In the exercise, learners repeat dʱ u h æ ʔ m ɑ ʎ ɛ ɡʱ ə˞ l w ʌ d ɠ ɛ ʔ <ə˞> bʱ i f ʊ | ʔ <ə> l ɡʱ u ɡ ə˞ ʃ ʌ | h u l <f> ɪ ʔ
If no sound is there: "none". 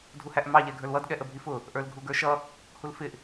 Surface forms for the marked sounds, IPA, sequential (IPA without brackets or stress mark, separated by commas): ə, ə˞, f